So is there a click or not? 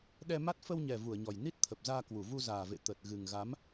no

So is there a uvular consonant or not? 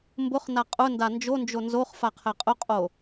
yes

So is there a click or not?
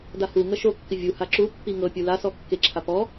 yes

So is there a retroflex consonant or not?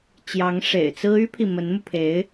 yes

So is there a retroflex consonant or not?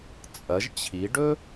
yes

